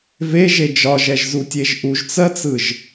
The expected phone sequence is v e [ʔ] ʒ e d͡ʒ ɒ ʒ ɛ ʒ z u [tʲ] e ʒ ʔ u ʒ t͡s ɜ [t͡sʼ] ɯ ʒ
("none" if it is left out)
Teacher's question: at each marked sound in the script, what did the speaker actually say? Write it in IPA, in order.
none, tʲ, t͡s

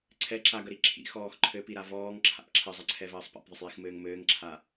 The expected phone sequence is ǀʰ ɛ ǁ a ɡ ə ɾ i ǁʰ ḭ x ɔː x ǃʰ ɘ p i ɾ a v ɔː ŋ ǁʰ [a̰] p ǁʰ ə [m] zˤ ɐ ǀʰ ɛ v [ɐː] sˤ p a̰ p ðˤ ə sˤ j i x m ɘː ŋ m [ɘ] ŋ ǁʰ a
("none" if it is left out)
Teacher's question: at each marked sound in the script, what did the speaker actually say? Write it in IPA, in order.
a̰, none, ɐː, ɘː

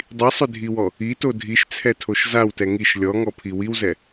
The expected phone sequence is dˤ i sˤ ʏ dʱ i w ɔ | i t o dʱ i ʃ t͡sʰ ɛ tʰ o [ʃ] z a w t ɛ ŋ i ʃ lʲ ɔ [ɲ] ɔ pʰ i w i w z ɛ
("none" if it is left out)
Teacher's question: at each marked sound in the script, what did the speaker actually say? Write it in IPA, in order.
ʃ, ŋ

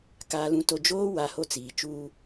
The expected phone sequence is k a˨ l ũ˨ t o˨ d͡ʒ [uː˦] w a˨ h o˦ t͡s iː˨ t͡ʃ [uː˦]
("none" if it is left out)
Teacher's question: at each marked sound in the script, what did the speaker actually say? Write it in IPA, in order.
oː˦, uː˦

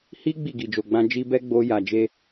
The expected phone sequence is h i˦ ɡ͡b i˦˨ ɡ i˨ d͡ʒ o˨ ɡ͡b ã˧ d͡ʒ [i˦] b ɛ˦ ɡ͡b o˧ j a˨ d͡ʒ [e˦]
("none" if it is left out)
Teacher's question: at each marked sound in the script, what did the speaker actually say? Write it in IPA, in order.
i˧, e˧

